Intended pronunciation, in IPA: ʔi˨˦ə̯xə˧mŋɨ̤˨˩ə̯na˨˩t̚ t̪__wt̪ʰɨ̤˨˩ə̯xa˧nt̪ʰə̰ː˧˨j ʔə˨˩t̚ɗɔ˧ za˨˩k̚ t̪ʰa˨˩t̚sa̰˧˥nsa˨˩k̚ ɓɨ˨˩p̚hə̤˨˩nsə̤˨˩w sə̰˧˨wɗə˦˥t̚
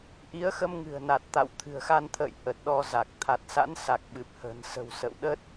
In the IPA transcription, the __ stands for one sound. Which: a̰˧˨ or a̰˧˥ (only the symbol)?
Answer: a̰˧˨